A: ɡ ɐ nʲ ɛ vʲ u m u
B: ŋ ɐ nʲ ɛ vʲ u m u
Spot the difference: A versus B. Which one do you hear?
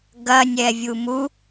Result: A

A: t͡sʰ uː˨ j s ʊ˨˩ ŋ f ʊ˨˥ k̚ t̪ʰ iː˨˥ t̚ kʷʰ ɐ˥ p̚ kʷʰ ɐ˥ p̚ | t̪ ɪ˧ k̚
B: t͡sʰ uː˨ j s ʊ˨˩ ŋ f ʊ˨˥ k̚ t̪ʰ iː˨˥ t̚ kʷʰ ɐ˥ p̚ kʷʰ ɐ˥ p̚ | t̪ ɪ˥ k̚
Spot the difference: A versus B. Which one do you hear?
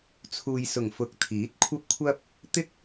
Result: B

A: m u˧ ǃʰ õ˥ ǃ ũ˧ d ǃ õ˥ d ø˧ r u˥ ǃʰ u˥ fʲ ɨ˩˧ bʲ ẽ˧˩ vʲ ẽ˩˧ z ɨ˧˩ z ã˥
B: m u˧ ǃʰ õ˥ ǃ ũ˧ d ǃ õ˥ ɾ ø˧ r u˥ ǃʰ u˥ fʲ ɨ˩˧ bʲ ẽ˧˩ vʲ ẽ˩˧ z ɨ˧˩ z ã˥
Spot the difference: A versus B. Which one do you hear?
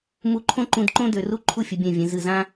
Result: A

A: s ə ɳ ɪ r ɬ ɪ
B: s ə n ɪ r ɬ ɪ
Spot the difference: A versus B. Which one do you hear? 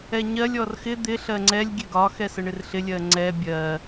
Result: A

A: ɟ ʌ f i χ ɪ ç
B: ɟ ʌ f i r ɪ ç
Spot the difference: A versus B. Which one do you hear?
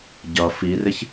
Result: B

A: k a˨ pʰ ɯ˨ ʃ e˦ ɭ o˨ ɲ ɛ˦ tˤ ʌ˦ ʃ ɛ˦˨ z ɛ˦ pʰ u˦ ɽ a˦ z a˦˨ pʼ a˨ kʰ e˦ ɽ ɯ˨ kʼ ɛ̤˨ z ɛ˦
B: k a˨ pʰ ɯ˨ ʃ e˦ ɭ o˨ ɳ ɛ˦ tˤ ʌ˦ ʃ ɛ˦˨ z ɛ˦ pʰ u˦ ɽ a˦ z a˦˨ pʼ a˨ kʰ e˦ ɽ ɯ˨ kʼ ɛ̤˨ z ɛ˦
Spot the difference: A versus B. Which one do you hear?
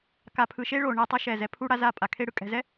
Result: B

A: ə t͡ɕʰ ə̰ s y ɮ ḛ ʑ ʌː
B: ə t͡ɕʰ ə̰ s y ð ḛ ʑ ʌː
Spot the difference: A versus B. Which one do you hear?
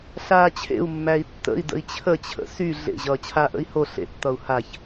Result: A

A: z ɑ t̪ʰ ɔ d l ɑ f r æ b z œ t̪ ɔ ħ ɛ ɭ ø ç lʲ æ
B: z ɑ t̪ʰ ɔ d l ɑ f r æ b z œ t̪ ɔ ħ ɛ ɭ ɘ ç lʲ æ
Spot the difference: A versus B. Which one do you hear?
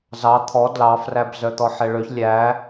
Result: A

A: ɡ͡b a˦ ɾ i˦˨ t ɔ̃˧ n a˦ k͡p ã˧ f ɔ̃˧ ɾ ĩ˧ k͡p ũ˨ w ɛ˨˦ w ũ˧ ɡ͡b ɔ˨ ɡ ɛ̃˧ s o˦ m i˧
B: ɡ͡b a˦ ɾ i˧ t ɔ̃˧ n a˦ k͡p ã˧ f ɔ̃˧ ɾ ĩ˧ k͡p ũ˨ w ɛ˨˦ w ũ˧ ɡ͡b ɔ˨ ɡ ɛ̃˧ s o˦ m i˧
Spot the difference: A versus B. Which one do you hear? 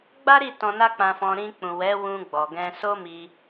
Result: A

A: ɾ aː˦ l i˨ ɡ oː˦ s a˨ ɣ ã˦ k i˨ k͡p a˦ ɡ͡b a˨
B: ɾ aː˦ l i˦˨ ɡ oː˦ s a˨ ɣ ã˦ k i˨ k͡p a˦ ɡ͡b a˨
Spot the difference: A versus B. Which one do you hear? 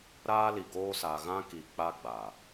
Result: A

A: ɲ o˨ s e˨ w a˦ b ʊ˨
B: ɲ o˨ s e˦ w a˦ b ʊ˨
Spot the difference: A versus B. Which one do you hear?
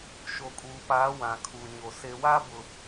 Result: A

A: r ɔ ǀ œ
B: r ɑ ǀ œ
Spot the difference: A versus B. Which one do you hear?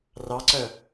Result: B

